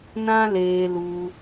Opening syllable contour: high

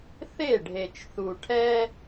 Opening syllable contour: falling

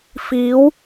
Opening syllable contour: rising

